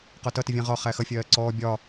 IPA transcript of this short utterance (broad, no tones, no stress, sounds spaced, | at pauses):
q ɒ t ʌ t ɪ vʲ æ̃ ʁ ɒ χ æ x ʌ fʲ ɜː ǀ ɔː bʲ ɒ